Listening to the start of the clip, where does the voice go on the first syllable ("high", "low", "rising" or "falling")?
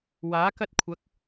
rising